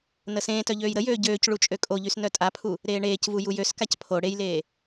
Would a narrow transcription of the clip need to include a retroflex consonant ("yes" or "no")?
yes